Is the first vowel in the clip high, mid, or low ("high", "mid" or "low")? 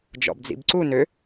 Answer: mid